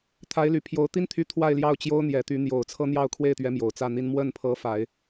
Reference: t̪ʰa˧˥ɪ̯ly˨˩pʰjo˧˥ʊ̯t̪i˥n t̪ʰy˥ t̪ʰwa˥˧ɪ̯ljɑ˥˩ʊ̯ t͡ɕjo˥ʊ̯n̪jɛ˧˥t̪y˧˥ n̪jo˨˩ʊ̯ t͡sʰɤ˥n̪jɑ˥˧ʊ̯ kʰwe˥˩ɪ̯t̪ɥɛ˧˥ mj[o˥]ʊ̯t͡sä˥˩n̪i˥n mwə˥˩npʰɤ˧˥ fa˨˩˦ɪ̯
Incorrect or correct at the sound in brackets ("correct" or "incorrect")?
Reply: incorrect